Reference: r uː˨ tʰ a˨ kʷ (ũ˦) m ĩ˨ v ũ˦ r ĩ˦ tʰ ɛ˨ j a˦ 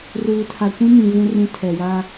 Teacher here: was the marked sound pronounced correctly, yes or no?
yes